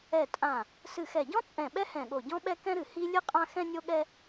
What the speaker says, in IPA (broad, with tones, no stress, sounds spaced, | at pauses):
ɛ˧˩ tʼ ã˧˩ | s ɨ˧˩ x ɛ˧˩ ɟ ɔ̃˥ t͡sʼ ɛ̃˧˩ ɓ ɛ˥ h ɛ̃˧˩ ɠ o˧˩ ɟ ɔ̃˥ ɓ ɛ˥ k ɛ̃˥ ɾ ɨ˧˩ h i˥ lʲ ɨ˥ qʼ ã˥ x ɛ̃˥ nʲ o˥ ɠ ɛ˥